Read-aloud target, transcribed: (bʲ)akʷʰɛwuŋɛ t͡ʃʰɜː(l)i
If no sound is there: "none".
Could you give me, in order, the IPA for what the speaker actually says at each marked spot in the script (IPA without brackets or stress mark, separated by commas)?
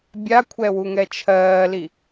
bʲ, l